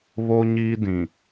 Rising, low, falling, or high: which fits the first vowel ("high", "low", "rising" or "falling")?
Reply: high